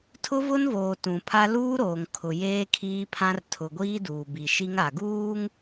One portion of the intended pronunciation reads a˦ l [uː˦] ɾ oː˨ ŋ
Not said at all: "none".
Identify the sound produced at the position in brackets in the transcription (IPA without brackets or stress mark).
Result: uː˦